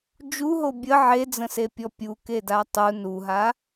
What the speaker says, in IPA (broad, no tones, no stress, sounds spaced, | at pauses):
d͡ʒ u ɦ o bʲ ə ʕ e d͡z ə̃ s e pʲ ɔ pʲ u k e d a tˤ u n u ɦ a